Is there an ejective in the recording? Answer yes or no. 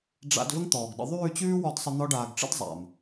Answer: no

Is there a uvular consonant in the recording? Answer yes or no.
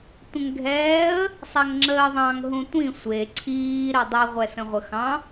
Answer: yes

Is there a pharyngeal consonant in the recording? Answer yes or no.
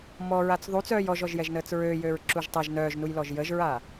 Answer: no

